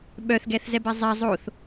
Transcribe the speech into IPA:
ɓœθɡɛθzɛbɛ zˤɛ zˤoθ

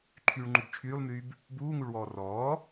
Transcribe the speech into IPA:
ǃʰyːɭŋ͡ǃubt͡ʃʰyːlˠmyːb | buːŋuɭwɔː rɔː

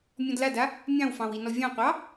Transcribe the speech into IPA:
mʲɔ̃dlada | mʲɑ̃wfɑ̃w inɔvʲɑ̃qʷɑ

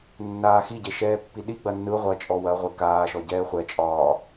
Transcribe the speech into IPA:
nːaːxiɟe ʃɛːpːiɗi ɡ͡bɐnːɯ ʁʷɐ t͡ʃʼɔwɐʁʷɪ kaːʃɔ ɟɛːχʷɛt͡ʃʼɒː

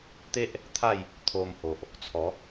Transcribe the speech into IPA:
t̪e˦ʔ | t̪ʰa˥˧j | t̪ʰo˧mho˨ʔ | t͡sʰɔ˨˦

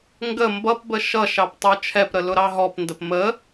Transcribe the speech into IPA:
ŋɡə mbʌpbə ʃʌʃɑp tˤə˞t͡ʃʰɛpɾə lʊɾɑɦɔpndəp mə

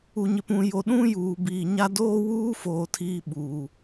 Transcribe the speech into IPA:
u˨ɲɪ˨pũ˨ jo˨ɗũ˦juː˨ biː˨ɲa˦ doː˦wuː˦foː˨ tʰiː˦ɓuː˨

